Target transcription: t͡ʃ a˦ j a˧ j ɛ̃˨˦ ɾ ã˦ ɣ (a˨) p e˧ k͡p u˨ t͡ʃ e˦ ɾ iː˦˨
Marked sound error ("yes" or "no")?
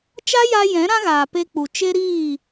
yes